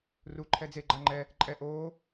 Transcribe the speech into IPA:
ru ǃʰɛd͡ze ɡ͡ǃaŋ͡ǃɛ | ǃʼɛ ʔoː

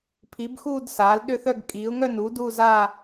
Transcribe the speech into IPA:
pʰi˨˥bxuː˥˧d saː˨˥lɗʏ˥˧θœ˥˧ɡ kʼiː˨˥ʊ̯ŋœ˥˧nuː˨˥ duː˥˧zaː˥˧

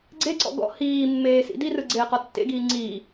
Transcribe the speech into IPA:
ɡ͡ǀeǀɔ̰ ɡɔ̰ hiːmːeː sḭdirɯ ɡ͡ǀeːqɔtːḛɡiː ŋ͡ǀi

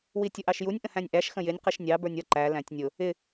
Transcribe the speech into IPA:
witʲʊʔɑʃjunʲ ʔə̃hæ̃nʲʔæʃ xə̃jɪnʲ qiʃnʲɑ bə˞nʲʌ ǃæ læ̃tʲnʲʊ | ɪ

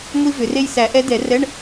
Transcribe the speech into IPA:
ŋʷi˥vʏ˨˩˦re˥j sæ˨˩˦ʔɛ˧˥dɛ˨˩˦rɛ˧˥˧ɳ

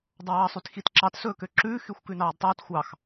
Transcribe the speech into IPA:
dˤɑːsˤytxitǁɑt sɵːkøǁʉː xyxʷkʉnɑːdtˤɵːt xʷɑx

